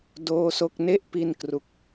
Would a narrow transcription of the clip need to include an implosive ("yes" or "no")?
no